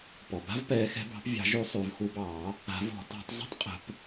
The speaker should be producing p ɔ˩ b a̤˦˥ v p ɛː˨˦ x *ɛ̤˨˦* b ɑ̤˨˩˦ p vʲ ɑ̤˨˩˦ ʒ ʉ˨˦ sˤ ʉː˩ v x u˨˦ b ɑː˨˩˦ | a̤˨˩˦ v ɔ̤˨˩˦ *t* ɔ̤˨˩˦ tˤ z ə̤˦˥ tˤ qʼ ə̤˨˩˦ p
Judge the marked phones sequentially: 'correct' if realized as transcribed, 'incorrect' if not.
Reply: correct, correct

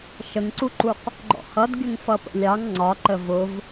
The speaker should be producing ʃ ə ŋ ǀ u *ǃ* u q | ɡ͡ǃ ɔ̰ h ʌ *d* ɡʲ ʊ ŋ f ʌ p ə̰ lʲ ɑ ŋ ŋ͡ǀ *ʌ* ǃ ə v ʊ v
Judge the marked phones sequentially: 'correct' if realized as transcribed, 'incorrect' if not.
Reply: correct, correct, incorrect

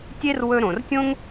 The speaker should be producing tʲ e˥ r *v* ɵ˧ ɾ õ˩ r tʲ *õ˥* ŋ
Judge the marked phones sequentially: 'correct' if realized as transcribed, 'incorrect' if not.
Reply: incorrect, correct

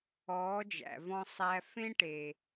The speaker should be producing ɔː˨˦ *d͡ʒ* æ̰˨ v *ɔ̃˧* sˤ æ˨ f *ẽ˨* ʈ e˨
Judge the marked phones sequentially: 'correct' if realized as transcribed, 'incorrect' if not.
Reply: correct, correct, incorrect

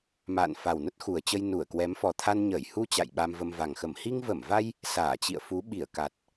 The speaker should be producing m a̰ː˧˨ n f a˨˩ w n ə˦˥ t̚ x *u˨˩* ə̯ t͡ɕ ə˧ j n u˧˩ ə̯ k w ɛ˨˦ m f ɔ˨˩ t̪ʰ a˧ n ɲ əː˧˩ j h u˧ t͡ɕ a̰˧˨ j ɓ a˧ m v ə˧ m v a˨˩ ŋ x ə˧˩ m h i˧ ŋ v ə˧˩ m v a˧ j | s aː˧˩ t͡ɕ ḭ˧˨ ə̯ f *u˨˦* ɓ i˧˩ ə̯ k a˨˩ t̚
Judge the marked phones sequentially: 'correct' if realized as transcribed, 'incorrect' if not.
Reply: correct, correct

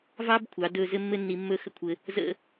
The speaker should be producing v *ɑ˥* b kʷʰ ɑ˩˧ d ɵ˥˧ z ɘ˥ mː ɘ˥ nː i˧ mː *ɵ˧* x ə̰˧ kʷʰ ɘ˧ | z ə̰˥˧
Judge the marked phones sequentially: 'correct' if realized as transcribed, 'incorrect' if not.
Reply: correct, incorrect

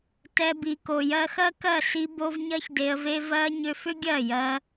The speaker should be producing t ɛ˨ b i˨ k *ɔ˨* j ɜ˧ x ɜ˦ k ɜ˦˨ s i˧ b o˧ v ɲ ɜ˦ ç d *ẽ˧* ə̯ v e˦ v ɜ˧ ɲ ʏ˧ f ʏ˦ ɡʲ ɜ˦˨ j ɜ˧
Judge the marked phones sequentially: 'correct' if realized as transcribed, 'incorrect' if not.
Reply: incorrect, incorrect

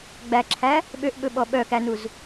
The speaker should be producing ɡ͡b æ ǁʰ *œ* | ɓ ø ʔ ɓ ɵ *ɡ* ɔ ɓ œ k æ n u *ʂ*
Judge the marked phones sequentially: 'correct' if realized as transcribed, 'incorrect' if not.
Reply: incorrect, incorrect, incorrect

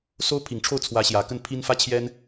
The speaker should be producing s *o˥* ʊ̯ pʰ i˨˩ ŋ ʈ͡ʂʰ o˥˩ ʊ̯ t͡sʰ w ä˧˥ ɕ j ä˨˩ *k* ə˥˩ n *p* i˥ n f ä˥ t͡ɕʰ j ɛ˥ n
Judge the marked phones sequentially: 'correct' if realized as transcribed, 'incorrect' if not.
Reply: correct, correct, incorrect

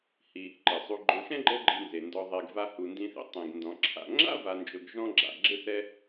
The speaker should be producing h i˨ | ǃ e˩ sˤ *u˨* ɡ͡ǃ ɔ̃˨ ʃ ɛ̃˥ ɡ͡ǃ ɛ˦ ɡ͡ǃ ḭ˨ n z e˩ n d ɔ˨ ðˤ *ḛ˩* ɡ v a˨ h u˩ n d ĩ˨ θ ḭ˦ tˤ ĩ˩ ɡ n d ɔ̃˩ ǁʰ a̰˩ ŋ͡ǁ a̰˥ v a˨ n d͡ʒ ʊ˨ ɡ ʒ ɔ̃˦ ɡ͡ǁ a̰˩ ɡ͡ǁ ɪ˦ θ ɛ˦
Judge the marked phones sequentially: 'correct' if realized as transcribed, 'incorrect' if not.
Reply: correct, incorrect

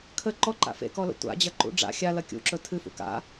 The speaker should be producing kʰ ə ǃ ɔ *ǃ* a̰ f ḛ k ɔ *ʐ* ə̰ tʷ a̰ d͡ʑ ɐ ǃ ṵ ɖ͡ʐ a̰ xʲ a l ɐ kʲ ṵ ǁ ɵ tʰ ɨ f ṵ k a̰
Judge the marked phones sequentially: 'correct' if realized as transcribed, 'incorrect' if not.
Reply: correct, incorrect

